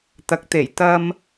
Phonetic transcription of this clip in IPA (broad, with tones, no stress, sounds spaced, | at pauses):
t̪ ɐ˨˥ k̚ t̪ e˨˩ j t̪ ɐ˥ m